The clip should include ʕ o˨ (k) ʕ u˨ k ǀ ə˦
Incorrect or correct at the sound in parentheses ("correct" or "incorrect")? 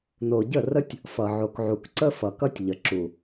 correct